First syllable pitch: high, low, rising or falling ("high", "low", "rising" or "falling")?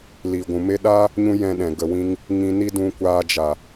low